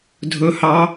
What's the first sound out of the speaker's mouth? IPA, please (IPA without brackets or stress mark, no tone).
dʱ